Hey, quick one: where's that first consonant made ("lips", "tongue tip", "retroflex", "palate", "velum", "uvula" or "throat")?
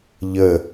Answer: palate